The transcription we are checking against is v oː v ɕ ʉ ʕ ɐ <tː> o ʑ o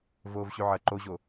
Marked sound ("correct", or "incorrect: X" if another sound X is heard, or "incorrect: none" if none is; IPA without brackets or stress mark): incorrect: ǃ